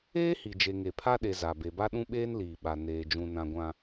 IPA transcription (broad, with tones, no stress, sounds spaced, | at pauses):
eː˦ h i˨ d͡ʒ e˨ ŋ e˨ pʰ a˦ ɗ e˨ z a˨ b e˨ b a˦ ɗ ũ˦ ɓ eː˦ n l iː˨ ɓ a˨ n eː˨ d͡ʒ ũ˨ n ã˨ ɡʷ ã˨